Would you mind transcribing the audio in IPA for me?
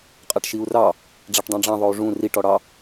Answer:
qʼ a ʈ ʃ i u̯ r ɑ | ɖ͡ʐ a ʈ dˤ ɑ̃ ɖ͡ʐ ɑ̃ ðˤ o u̯ ʐ ũ r i ʈ ɔ ɽ ɑ

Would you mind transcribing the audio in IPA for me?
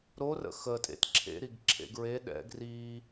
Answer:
ɾ o r ə̰ x ə tʼ ḛ t ǁʰ ḛ ɾ i ɡ ǁʰ ḛ ɡ ɹ e ɗ ɛ̰ ɡ r i

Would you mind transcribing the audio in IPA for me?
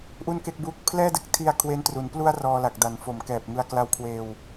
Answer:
ʔ u˥˩ n k e˥˩ k̚ b uː˥˩ k̚ pʰ l ɛː˥˩ d ɯ˦˥ k̚ tʰ i˧ a̯ kʰ w e˦˥ n t r u˩˦ n p l u˥˩ a̯ r ɔː˧ l a˨˩ k̚ d a˩˦ n f o˨˩ m k ɛː˨˩ p̚ ŋ ɯ˧ a̯ k l a˦˥ w kʰ w eː˧ w

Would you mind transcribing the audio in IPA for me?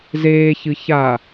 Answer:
z eː ç ɨ ç a

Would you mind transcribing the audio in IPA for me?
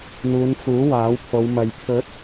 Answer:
n̪ uː˨˧ n f uː˨˥ w aː˨˥ w pʰ o˨˧ w m ɐ˨ j pʰ ɵ˨˥ t̚

